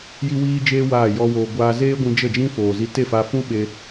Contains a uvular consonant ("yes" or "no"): no